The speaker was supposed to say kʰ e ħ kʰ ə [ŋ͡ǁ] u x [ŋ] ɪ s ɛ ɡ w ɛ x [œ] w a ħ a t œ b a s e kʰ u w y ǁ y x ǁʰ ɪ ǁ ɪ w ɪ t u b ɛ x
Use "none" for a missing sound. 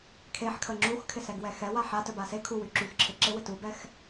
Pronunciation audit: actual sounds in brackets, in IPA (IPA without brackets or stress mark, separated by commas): ŋ͡ǁ, kʰ, ɛ